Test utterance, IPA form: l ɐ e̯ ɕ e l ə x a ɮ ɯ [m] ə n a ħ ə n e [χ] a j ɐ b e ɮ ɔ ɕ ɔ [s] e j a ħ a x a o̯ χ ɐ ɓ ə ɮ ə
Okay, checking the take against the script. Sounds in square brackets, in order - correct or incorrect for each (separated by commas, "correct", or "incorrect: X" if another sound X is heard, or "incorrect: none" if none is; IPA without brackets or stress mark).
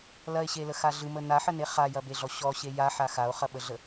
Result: correct, correct, incorrect: ɕ